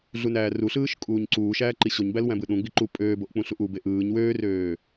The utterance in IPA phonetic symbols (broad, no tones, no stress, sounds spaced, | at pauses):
ɮ u n æː r u ɬ ɯː ʃ kʼ uː ɲ ǀ uː ʃ æː ǃ i ɕ o ɲ b æ l w æ̃ b ɯ ɗ ũ ɡ͡b i ǃ u pʼ øː b o ʔ k͡p ũ ɬ u ʔ u b e ʔ ɯː ɲ w øː r øː